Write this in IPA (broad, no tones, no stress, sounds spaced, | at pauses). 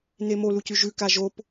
n e m o l u c ʉ ʒ ʉ k a ʒ o p